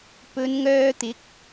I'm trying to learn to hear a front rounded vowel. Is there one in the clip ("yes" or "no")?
yes